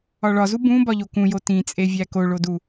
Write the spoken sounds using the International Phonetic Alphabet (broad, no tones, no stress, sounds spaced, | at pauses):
ɒ ɭ ɒ z u b ũ b ɒ ʎ o k ũ j o t ĩ t͡sʼ e vʲ æ k o ɭ o d u